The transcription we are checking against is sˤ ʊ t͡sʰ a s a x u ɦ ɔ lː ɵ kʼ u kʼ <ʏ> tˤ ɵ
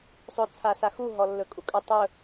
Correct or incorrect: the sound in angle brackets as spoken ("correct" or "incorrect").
correct